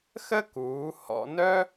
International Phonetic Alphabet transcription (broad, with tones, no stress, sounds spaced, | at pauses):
x ə˥ k uː˩˧ h ɔ̰˧ n œ˥